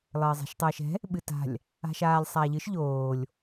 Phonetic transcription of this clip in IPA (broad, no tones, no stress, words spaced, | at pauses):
lˠɘːzˤɛ̤ʃtˤɘːʃɛ̤ | ɓɨta̤lʲ | a̤ʃaːlʲsˤaːʎɨʃ ʎoːlʲ